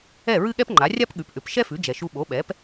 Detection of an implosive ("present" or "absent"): present